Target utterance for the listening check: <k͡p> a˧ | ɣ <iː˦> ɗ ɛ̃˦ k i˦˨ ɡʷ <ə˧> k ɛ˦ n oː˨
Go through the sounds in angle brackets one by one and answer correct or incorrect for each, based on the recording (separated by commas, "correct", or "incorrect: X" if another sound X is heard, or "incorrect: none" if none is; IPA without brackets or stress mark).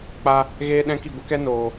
correct, incorrect: eː˦, correct